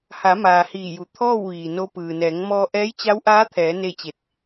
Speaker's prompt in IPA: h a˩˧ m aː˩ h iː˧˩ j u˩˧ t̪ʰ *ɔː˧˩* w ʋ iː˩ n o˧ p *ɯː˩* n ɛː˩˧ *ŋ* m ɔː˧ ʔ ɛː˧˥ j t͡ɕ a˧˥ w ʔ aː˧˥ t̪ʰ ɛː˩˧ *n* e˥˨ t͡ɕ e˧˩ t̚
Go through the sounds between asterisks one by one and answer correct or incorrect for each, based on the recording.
incorrect, correct, correct, correct

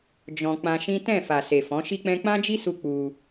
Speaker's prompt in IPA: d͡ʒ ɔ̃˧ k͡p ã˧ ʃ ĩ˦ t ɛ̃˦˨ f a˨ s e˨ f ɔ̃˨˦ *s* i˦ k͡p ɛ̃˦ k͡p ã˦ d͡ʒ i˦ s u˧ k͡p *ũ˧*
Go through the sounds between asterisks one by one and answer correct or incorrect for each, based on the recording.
incorrect, incorrect

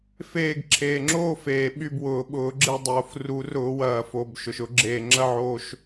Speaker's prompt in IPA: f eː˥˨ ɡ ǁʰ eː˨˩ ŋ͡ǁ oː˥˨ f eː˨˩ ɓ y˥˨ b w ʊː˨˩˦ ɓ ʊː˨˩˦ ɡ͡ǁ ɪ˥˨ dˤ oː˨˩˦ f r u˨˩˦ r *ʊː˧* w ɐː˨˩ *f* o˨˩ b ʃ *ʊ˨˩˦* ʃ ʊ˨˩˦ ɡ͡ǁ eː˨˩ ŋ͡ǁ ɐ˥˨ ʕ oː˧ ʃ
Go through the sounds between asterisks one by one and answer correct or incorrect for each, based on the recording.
incorrect, correct, incorrect

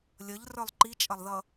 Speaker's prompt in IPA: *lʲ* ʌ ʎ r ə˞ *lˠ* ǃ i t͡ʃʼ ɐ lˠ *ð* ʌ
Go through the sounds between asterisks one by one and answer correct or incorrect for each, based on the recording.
correct, correct, correct

